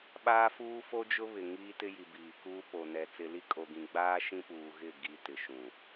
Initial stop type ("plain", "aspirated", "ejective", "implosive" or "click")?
implosive